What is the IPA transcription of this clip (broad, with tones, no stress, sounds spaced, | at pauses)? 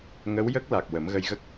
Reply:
ŋ ə˧˥ w j ə˦˥ k̚ l a˨˩ k̚ w ə˨˩˦ m ɣ ə˧ j ɣ ə˦˥ k̚